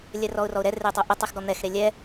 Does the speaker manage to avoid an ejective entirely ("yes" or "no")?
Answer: yes